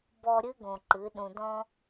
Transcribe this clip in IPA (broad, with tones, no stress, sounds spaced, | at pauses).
b ɔ˨ ɾʲ ɨ˦ ɡ õ˨ ǃ ɨ˨˦ ɗ ũ˨ d ɔ̃˦